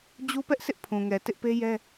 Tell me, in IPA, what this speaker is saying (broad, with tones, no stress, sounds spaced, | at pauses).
d͡ʑ u˦ p ɛ˦ ʔ sʰ ɪ˦ ʔ pʰ ũ˨ ŋ ɛ˨ t ɪ˦ ʔ p e˦ j ɛ˦